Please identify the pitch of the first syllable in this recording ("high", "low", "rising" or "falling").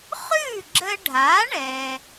falling